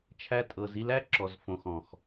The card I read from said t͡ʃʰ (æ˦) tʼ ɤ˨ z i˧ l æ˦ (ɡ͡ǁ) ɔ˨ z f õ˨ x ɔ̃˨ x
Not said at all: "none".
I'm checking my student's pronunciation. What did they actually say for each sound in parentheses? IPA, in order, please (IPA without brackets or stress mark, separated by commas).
æ˧, ǁ